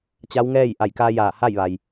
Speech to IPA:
t͡ɕ a˧˥ w ŋ ɛː˥˨ j ʔ a˧˩ j k a˧ j aː˧˩ h a˥˨ j ʋ a˩ j

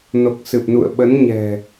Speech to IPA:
n o˨˩ k̚ s ɨ˨˩ p̚ n ṵ˧˨ ə̯ ɓ ə˨˦ n ɲ ɛ̤˨˩

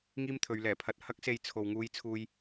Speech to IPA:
ŋ iː˥ m t̪ʰ ɵ˨˧ ɥ l ɛː˨˩ pʰ ɐ˧ t̚ h ɐ˥ k̚ s e˧ j t͡sʰ o˨ w ŋ uː˧ j t͡sʰ uː˧ j

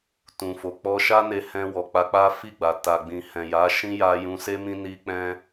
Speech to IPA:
t ũ˨ f o˨ k͡p ɔ˧ ʃ a˦ n e˧ h ɛ̃˧ w ɔ˨ k͡p a˧ k͡p a˦ f i˦˨ ɡ͡b a˨ t a˨ ɡ͡b ĩ˨ h ɛ̃˨ j a˨˦ ʃ ĩ˦ j a˧ j ũ˧ s e˦ m ĩ˦ n i˦ k͡p ɛ̃˦

